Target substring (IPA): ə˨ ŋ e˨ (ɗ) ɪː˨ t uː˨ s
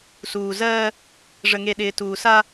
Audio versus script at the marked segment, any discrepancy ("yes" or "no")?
no